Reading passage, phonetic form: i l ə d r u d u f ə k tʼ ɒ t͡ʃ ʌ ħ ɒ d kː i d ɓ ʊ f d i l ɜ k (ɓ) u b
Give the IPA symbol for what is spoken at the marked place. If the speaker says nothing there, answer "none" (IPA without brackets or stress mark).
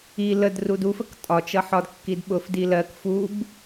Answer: f